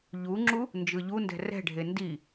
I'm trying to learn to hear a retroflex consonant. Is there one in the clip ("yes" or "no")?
yes